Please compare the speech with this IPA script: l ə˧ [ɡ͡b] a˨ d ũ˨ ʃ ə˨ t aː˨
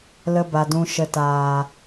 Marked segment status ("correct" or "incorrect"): incorrect